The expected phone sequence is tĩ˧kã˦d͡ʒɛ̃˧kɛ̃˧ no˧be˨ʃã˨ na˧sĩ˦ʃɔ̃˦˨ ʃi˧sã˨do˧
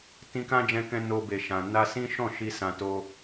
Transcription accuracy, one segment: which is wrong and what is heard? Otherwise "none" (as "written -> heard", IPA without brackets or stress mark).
d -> t